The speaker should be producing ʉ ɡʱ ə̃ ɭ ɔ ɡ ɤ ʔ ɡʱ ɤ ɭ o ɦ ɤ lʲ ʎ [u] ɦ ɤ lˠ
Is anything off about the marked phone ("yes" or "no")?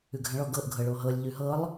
yes